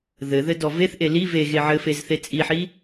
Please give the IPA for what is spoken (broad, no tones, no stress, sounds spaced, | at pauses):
ð ɘ ð ɘ d ɔ v e θ ʔ e l i v e ɣ e ʕ ɘ f e z θ e t͡sʼ i ħ i